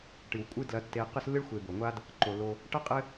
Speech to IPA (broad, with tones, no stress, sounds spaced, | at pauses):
ʈ ɨ˩ w kʷʼ ɨ˦ d l ɐ˨ tː e˨ q ɨ˦ s lː ɨ˥ ɭ xʷ e˨ b o˩ ŋʷ a˥ d | ǃ o˩ lː o˨ | ʈ ɐ˥ qʼ ɘ˥